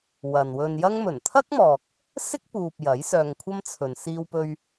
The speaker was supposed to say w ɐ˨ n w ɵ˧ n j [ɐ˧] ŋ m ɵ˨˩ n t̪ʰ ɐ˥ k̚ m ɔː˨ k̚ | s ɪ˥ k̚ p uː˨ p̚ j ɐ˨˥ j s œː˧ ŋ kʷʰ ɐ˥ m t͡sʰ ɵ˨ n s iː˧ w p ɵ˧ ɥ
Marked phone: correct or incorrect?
incorrect